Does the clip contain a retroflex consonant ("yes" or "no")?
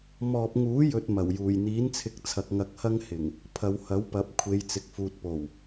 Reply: no